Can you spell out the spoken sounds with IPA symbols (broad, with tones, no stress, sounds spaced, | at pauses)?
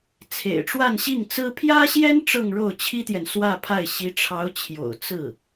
t͡sʰ ḛ˨˩ ɪ̯ ʈ͡ʂ w a˥˧ n ɕ i˥˩ ŋ t͡s ɹ̩˥ pʰ j ä˥ ɕ j ɛ˥ n ʈ͡ʂ ɤ˥˧ ŋ ɻ o˥˩ ʊ̯ t͡ɕʰ i˥ t̪ j ɛ˨ n s w ä˥˧ pʰ a˥˩ ɪ̯ ɕ i˧˥ ʈ͡ʂʰ ɑ˧˥ ʊ̯ t͡ɕʰ j o̰˨˩ ʊ̯ t͡s ɹ̩˥˩